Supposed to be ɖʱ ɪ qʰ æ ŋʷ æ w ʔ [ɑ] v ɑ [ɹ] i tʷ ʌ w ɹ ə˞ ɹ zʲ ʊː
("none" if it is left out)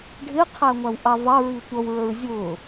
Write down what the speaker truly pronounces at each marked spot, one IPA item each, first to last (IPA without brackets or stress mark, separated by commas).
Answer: ɑ, ɹ